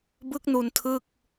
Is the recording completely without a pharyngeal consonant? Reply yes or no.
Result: yes